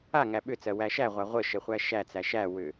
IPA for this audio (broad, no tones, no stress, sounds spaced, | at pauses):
a ŋ æ ɓ ʏ t͡s ɜ w æ ʃ æ ʁʷ a ʁʷ ə ʃ ə χʷ æ ʃ æ t͡s æ ʃ æ w ʏ